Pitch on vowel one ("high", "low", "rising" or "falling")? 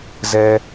low